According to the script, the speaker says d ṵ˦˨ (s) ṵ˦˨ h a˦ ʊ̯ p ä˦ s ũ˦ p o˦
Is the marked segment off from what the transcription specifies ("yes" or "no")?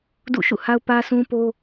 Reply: yes